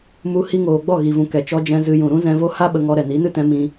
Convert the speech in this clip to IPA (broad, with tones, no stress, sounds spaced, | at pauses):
m u˧ h i˧ ŋ oː˨ ɡ͡b ɔ˦˨ ɣ i˨ v ũ˨ k ɛ˨ t͡ʃ ɔ˧ d͡ʒ ɛ̃˧ z ɨ˧ j ũ˨ ɾ ũ˦ z ɛ̃˧ v o˦ h a˦ ɓ ə˧ ŋ ɔ˧ ɾ ɛ˨ n i˨˦ n ɨ˦ t ɛ̃˨˦ m ĩ˧